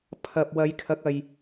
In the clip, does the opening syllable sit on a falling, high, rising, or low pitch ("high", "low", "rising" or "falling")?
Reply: low